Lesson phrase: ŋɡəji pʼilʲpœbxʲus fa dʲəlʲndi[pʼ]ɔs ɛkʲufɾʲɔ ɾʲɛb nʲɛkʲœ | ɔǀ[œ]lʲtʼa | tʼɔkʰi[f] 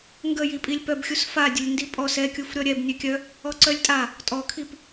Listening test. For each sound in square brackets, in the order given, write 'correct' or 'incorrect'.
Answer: correct, correct, incorrect

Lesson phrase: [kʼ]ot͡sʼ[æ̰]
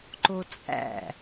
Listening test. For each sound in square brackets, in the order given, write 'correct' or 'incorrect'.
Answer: incorrect, correct

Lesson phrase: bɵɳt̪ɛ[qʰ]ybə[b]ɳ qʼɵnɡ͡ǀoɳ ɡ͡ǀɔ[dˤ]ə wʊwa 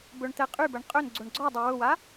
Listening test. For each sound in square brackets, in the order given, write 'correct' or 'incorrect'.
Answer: incorrect, incorrect, correct

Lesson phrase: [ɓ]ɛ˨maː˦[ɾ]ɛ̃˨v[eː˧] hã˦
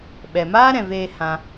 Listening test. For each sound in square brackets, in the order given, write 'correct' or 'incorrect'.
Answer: correct, correct, correct

